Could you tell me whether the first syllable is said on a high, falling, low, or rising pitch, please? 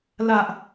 low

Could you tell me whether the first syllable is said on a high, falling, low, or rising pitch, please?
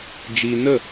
low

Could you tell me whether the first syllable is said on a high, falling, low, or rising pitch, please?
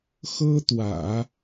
high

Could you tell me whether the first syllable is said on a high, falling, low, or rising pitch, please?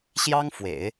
high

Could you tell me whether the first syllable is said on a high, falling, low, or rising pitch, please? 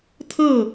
falling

